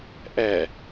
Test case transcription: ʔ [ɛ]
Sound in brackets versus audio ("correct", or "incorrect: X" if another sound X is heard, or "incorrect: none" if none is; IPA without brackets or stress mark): correct